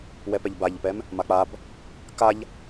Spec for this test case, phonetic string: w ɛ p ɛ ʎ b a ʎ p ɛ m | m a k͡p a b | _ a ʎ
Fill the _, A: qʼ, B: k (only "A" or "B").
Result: B